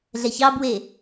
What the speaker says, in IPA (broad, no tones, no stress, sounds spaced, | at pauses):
ɮ ɛ ç ɑ b w e